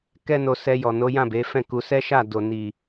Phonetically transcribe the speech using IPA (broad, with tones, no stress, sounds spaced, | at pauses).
k ɛ˦ n o˧ s ɛ˧ j ɔ˨ n o˨˦ j ã˦˨ b e˨˦ f ɛ̃˦˨ k u˧ s ɛ˦ ʃ a˦˨ d o˨ n i˨